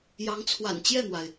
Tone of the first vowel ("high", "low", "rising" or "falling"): rising